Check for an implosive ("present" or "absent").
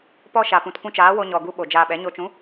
present